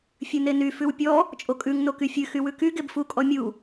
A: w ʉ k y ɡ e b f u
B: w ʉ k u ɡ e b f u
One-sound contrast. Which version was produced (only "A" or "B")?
A